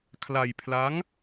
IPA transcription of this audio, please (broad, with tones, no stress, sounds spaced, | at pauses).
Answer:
kʰ l a˧ j pʰ l a˦˥ ŋ